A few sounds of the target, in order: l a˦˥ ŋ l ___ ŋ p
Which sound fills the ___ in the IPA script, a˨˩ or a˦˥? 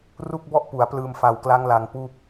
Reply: a˨˩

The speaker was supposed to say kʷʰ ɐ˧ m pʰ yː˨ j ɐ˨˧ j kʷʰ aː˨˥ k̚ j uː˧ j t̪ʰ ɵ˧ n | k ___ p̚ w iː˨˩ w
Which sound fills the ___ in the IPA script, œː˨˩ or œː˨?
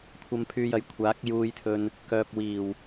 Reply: œː˨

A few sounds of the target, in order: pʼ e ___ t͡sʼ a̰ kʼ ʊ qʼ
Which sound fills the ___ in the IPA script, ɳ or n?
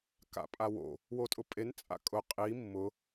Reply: n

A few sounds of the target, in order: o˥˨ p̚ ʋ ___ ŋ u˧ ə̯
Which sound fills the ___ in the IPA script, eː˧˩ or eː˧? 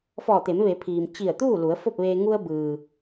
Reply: eː˧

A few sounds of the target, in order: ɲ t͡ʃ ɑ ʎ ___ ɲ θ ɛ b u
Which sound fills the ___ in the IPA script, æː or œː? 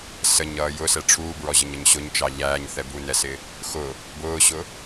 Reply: æː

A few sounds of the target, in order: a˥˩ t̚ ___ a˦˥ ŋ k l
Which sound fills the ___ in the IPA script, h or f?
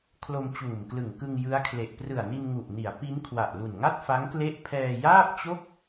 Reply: f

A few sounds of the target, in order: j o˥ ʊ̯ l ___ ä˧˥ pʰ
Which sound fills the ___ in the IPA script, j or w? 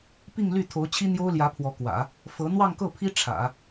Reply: j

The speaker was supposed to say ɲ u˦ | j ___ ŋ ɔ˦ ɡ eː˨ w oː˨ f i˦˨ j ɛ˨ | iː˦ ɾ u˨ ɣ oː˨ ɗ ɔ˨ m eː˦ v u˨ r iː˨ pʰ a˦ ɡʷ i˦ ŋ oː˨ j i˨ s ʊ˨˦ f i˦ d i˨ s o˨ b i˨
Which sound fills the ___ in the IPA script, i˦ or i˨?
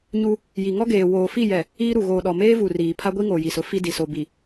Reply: i˨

